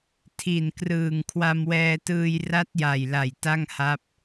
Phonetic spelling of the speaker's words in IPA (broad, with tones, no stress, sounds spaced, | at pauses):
tʰ i˨˩ n k r ɯː˨˩ ŋ kʰ w a˧ m w ɛː˧ t ɯː˧ j r a˦˥ t̚ j a˨˩ j l a˨˩ j t a˥˩ ŋ h a˦˥ p̚